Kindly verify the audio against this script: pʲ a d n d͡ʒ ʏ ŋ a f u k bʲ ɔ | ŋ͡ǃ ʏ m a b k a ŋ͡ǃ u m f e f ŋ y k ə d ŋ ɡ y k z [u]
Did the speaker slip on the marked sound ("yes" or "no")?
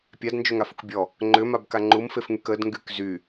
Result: yes